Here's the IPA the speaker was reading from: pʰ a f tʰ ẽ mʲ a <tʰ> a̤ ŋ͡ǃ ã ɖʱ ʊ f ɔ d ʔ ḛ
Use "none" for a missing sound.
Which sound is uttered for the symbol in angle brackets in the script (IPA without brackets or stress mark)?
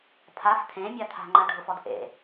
tʰ